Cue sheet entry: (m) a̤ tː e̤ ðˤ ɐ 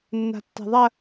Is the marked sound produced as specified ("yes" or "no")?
no